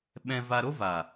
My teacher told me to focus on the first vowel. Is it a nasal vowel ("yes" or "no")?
yes